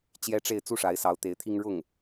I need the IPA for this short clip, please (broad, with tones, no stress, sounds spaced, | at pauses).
t͡ɕ j ɛ˥ ʈ͡ʂ e˥˧ ɪ̯ t͡s u˥˩ ʂ a˧˥ ɪ̯ s ɑ˧˥ ʊ̯ t̪ e˧˥ ɪ̯ t̪ʰ i˥ ŋ ɻ ʊ˥˩ ŋ